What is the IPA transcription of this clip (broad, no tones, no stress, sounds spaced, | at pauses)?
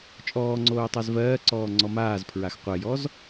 t͡ʃʼ ɔː ŋ͡ǀ oː tˤ a z v ɜː ǀ ɔː ŋ͡ǀ ɔ m aː z pʰ ɹ a x qʷ ɜ j ɔ z